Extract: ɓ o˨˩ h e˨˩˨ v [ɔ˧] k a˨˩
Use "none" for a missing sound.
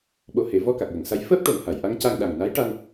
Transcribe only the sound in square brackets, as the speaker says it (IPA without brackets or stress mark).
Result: ɔ˧